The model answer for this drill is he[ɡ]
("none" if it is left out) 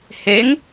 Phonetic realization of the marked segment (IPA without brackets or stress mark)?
ŋ